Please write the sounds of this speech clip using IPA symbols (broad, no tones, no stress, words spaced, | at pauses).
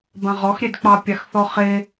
bãʁɔxɾʲedk͡pɑ pʲaxθɔχe